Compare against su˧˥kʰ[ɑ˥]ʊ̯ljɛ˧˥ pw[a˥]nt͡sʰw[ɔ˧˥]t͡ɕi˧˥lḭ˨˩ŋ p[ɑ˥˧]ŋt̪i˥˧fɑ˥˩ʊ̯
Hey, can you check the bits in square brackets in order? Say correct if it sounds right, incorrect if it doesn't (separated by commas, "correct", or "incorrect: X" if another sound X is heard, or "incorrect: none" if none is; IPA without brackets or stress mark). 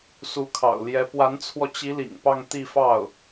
incorrect: ɑ̰˨˩, incorrect: a˧˥, incorrect: ɔ˧, correct